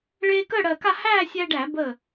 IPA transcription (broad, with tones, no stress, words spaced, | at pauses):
ɭeː˧kəː˥˨ɽɜ˧˩ka˥˨ hæː˥˨sʲæ˧ɪ̯ ɖæ˧˩˧bəː˧˩